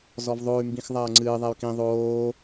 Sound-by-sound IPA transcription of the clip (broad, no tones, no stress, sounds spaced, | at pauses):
z ɔ v ðˤ o y̯ m b ĩ x ðˤ ɐː ŋ͡ǀ ɨː ðˤ e y̯ k ĩ ðˤ oː